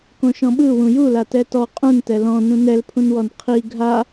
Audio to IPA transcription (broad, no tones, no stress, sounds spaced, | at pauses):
k õ ʃ ɔ̃ ɓ ɯ w ũ j u l a t ɛ t ɔ qʼ ũ n t ɛ l ɔ̃ n ũ n ɛ l pʰ ũ n w ɔ n qʰ i ɡʱ a